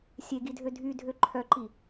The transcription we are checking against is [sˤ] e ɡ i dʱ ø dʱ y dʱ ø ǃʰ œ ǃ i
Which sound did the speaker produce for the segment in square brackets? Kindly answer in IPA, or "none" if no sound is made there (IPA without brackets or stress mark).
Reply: sʲ